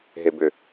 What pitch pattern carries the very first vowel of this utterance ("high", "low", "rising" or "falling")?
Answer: low